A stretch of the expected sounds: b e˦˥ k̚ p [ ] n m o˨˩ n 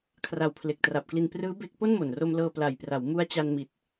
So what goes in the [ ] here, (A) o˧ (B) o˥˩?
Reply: B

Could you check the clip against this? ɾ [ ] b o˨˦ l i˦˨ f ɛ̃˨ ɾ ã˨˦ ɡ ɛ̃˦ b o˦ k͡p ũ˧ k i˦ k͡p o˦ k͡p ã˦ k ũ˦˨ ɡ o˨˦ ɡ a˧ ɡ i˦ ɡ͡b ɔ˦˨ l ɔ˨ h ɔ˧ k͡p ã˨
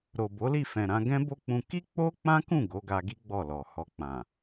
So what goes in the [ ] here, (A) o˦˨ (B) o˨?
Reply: B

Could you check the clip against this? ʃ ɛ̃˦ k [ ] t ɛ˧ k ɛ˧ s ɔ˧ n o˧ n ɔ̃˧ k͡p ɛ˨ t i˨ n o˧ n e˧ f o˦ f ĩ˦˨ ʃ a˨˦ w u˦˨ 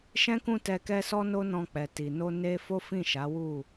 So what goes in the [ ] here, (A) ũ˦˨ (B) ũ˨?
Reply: A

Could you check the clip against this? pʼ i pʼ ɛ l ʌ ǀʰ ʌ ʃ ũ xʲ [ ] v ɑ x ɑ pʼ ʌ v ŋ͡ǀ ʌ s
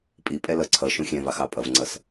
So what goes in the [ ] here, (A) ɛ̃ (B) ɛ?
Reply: A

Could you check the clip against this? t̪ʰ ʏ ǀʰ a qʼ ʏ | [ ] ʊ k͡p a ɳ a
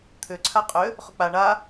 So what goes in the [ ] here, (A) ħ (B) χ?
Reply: B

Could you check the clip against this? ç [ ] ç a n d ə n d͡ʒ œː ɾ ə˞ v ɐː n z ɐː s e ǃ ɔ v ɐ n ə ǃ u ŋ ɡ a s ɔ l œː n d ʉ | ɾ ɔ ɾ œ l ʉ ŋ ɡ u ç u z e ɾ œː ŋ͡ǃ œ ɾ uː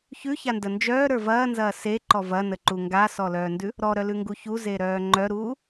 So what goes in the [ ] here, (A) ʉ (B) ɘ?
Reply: A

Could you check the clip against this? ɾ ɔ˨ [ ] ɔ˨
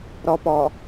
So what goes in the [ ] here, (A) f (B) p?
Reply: B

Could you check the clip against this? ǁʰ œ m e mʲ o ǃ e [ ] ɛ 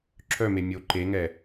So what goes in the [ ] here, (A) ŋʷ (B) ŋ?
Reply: B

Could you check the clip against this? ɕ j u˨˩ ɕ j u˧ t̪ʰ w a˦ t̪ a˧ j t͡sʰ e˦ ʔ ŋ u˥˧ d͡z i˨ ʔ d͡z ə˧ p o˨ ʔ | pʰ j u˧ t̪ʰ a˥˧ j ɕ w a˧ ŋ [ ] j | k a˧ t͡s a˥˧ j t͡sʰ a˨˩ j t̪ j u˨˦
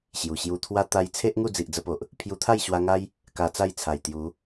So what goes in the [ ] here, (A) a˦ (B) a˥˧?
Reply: A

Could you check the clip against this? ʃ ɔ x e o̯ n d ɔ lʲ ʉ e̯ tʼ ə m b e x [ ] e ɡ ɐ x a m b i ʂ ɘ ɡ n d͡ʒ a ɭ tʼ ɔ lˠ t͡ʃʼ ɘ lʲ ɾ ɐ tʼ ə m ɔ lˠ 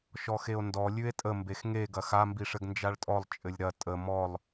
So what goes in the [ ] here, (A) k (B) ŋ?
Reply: B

